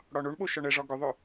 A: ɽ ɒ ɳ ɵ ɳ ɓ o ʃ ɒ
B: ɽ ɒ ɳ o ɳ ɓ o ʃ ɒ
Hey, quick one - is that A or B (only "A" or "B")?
B